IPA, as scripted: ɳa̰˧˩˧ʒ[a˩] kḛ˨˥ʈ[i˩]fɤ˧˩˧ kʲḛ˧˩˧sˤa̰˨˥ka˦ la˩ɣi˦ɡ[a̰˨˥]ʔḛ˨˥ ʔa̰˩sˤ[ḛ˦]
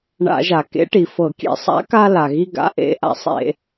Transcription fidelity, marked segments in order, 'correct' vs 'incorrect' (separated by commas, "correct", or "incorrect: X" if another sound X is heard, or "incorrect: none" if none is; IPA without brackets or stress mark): correct, correct, correct, incorrect: ḛ˧˩˧